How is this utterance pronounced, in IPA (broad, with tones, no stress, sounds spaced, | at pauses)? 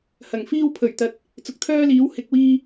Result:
h ɐ˨˩ ŋ f iː˥ w pʰ ɵ˨˩ ɥ t̪ ɐ˨ t̚ | t͡s ʊ˨ k̚ t̪ʰ œː˥ l iː˨˥ w h ɪ˨ k̚ w iː˧